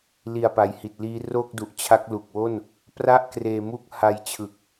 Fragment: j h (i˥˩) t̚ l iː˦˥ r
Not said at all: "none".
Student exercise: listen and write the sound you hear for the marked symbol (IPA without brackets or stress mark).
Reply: i˨˩